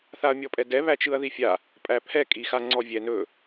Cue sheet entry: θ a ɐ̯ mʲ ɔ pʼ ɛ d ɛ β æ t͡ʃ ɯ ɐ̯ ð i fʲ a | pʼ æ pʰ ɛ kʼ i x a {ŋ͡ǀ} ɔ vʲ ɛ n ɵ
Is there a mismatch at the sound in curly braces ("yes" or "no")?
no